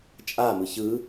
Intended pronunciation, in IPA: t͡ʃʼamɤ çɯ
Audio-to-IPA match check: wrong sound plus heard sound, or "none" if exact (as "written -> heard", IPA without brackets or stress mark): ɤ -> ɯ